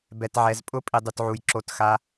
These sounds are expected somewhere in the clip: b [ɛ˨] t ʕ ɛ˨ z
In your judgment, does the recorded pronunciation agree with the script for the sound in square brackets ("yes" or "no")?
yes